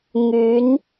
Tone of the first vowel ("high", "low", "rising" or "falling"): rising